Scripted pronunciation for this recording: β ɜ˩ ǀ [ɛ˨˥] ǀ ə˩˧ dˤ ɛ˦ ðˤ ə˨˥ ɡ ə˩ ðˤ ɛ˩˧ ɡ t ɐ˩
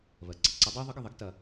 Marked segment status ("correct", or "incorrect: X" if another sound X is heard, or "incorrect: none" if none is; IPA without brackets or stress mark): incorrect: ə˨˥